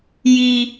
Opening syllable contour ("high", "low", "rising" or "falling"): high